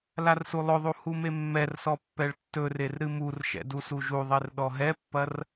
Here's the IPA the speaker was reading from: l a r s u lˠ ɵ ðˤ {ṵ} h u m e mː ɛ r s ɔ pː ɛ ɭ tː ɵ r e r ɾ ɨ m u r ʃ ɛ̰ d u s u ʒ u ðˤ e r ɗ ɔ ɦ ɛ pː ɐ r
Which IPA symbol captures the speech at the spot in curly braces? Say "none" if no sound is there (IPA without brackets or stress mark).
u